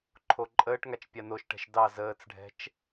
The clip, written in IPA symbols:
ǃʰ o ǃʼ əː ʈ ŋ a t͡ʃ pʲ a n o ʃ ʈ ɛ̤ ʃ d ɑ z əː t͡s ɖʱ ɛ̤ t͡ʃ

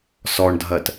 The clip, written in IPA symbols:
s ɔ ɳ dʱ ɜ t

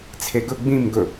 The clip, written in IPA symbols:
t͡sʰ e ɡ ɵ ɡ͡b ĩ m ɡ ɵ

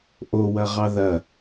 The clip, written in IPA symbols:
ʔ o w ɐ ʁ ɑ ð ɐ

